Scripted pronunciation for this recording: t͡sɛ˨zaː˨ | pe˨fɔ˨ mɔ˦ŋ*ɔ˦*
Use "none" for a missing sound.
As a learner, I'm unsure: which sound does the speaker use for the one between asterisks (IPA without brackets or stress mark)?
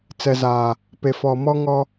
ɔ˦